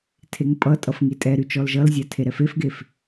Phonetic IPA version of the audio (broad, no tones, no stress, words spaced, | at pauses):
tʰeŋpʼʌtʼʌf ŋitʼɛɾy t͡ʃɔlʒʌlzʲa tʰeɾɛfefɡef